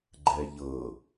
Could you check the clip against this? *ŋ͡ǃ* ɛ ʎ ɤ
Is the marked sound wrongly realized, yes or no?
yes